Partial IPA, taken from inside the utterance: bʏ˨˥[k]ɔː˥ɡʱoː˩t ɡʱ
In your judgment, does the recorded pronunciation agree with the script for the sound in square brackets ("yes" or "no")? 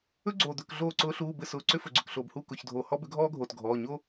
no